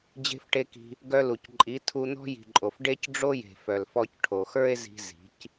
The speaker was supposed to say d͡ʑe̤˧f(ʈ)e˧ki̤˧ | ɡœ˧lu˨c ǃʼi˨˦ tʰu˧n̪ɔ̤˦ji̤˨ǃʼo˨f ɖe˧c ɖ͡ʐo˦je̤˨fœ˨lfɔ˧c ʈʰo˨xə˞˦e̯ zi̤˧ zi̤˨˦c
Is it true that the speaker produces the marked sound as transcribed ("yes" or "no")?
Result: yes